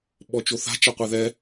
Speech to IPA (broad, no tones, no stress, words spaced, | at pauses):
ɓɔt͡ʃoθa̤ t͡ʃaqʷeðɛ